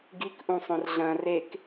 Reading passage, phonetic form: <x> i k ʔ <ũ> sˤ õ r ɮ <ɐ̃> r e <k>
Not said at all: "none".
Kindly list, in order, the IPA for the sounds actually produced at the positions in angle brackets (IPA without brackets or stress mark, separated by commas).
ɡ, ũ, ɐ̃, k